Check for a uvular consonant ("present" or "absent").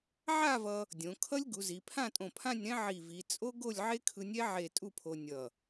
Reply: absent